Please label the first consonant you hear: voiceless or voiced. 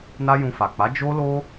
voiced